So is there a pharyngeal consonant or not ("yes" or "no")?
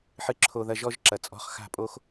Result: yes